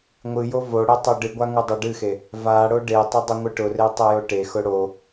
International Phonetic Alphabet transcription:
ŋʷ ɨ j o v o ɽ e tˤ o ɖ ɨ ɡʷ a ŋ u dˤ o ɖ ɨ x e | v a ɽ o ɖ e tˤ ʊ dˤ ʊ ŋʷ ɨ ʈ ʊ r e tˤ e j o ʈ e x ʊ ɽ o

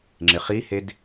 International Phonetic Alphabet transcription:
ŋ͡ǁ ɪ χ i h e d

